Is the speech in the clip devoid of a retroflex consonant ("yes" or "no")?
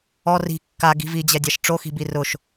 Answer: no